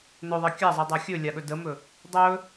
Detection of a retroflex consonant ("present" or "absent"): absent